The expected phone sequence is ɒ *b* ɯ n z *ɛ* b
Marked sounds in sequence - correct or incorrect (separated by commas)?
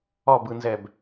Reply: correct, correct